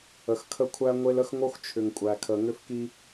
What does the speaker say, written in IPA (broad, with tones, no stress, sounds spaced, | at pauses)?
ə˨ x kʰ ə˦ kʷʰ æ˦ ŋʷ e˦ l ə˦ x ŋ o˦ x t͡ʃʰ ʏ˨ ŋ kʷʼ æ˨ kʰ ə˨ ŋ ʏ˦ f k i˦